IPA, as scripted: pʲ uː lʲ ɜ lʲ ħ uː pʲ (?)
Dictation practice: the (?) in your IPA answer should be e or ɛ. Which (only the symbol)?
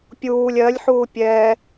ɛ